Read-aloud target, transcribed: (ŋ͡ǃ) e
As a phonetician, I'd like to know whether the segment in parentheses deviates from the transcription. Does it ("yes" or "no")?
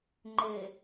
no